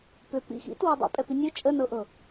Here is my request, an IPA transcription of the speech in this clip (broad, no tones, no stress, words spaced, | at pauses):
pʏ pḭ xḭtwɛ dˤḭpʼɛpi nʲɵ t͡ʃʼənɤʔɤ